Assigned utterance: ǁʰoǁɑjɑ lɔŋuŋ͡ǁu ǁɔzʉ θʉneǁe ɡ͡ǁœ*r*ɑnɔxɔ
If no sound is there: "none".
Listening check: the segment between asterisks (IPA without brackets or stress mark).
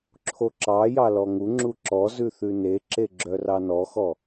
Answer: r